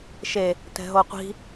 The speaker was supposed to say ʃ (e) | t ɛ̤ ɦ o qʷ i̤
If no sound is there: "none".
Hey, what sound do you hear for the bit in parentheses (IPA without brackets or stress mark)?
e